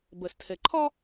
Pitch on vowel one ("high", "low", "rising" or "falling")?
low